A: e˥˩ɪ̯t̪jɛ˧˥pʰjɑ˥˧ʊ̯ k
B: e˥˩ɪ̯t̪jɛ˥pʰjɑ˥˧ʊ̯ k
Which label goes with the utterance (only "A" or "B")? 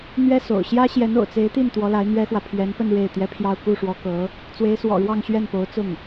B